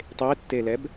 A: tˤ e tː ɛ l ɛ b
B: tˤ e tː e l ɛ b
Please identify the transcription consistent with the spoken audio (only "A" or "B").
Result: B